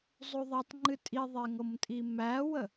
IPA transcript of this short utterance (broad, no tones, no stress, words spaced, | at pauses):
zˤoðˤætˤŋ͡ǃɨ tʼiðˤeŋɤmtʼi mæwə